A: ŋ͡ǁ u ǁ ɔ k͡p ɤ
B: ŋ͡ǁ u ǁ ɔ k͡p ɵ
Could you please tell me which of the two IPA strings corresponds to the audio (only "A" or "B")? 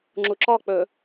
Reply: B